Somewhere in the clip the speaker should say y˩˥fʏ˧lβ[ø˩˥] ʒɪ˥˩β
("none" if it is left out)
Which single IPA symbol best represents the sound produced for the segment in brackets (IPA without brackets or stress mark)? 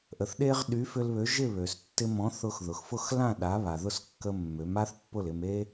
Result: ø˩˥